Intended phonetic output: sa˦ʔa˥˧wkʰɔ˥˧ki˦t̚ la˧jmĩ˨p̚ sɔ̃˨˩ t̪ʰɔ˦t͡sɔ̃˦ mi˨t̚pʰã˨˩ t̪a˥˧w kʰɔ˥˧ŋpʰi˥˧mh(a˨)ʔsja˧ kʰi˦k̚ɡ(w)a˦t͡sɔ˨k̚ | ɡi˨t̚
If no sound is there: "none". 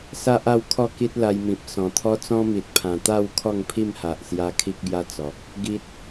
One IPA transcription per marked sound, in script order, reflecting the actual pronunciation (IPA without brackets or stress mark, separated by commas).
a˨, j